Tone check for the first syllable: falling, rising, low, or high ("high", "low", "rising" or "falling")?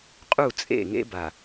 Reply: falling